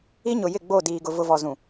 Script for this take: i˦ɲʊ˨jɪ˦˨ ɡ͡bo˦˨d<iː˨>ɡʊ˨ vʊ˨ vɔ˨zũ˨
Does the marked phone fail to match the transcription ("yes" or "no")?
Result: no